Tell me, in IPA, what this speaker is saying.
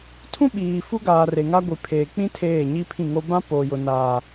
tʰ ũ˦ ɓ iː˨ f u˦ ɡ aː˨ r e˨ ŋ a˦ ɡʷ i˨ pʰ eː˨ k͡p ĩ˦ tʰ eː˦˨ ɲ i˦ pʰ ĩ˦˨ ŋ o˦ b ã˦ p oː˨ j ʊ˨ n aː˨

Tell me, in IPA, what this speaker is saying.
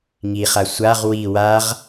ŋ i χ a sʷ a ʁ w i w a ʁ

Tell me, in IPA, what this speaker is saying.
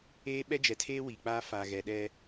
eː˦ ɓ ɛ˦ d͡ʒ ɛ˨ tʰ eː˦ w i˨ k͡p a˦ f aː˨ ɣ ɛ˨ ɗ ɛ˦

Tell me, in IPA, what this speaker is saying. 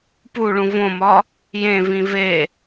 p u ɭ ũ v õ m ɒ | j ẽ v ĩ v e

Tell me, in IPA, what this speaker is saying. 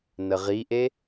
n ə ʁ i ʔ e

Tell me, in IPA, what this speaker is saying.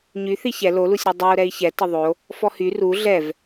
ɲ y θ i ç ɛ l o l u sʲ ɾ u dˤ o u̯ ɾ ɛ i̯ ç ɛ t ə ðˤ o | f ɔ h y r u ɮ ɛ v

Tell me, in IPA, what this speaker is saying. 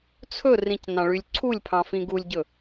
t͡sʰ ɵ r ĩ c n ɑ̃ ɭ y lʲ ǀʰ u lʲ pʰ ɑ̃ f ĩ ɡ u lʲ ɟ ɵ

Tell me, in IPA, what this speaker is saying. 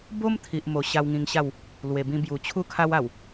b o˦ m t̪ʰ i˨ ʔ m o˨˩ ɕ a˧ w ŋ ĩ˧ ŋ ɕ a˥˧ w | l w e˨˩ b ĩ˧ b j u˨˩ t͡ɕʰ u˥˧ kʰ a˧ w a˨˩ w

